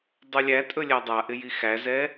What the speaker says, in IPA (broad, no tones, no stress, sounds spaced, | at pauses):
dˤ ɵ lʲ æ tʼ ɵ lʲ æ dˤ a ʔ ɪ j i x æ z ɛ